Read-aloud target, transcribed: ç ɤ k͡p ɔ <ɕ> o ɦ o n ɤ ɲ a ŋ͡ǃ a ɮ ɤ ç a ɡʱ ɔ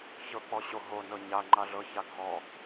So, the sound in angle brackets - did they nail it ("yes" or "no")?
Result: yes